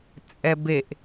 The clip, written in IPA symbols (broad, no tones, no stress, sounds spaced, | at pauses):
t͡sʼ ɛ b e ʔ